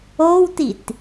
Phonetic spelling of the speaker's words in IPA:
o w t i t

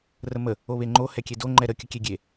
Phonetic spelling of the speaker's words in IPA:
r ə m ə | o β e ŋ͡ǃ o h ɛ kʲ e d o ŋ͡ǃ ɛ ɾ ə kʲ ə kʲ e ɡʲ e

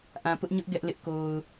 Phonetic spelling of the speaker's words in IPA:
ʔ ã˨ p ʊ˦ ʔ ɲ ʊ˦ ʔ ɡ ɛ˦ ʔ l ɪ˦ ʔ k o˨ ʊ̯

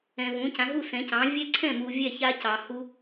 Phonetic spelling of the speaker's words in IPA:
ɛ̃˨ v ũ˩˥ c ã˩˥ ɦ u˥˩ s ɛ̃˩˥ c ɑ̃˩˥ vʲ ɛ˦˥ ǀʰ ɛ̃˥˩ m u˨ vʲ ɛ˥˩ ç a˦˥ c ɑ˨ h u˦˥

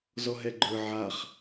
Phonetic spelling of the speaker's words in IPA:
z ɔ ɦ ɛ ɡ͡ǃ ə˞ ʕ a χ

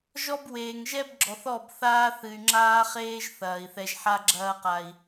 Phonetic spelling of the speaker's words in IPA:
ʒ ɔ˦ b w eː˨ ŋ ʒ ɛ˦ b ɡ͡ǁ ɔ˨ θ ɔ˦˨ b θ aː˦ θ ɨ˨ y̯ ŋ͡ǁ aː˦ χ eː˦ ʒ θ ɐː˨ i̯ θ ɛ˧ ʒ ħ a˦ ɡ͡ǁ ɐː˧ q a˨ i̯

